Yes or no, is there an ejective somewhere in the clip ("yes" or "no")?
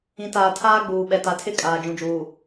yes